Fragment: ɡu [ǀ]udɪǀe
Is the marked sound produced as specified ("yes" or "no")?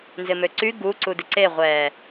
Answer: yes